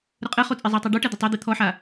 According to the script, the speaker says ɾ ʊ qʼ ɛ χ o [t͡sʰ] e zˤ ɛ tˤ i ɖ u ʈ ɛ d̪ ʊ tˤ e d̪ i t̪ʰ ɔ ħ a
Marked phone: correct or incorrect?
incorrect